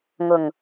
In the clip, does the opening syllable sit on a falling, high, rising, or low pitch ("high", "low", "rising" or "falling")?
low